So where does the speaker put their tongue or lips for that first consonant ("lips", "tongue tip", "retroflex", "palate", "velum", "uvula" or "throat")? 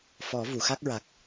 lips